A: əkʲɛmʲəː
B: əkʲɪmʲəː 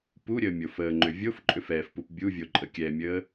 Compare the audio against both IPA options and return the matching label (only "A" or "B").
A